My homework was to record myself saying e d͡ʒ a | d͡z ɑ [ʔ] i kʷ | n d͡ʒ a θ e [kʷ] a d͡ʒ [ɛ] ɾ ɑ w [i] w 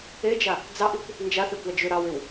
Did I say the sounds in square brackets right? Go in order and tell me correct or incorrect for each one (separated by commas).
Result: correct, correct, incorrect, incorrect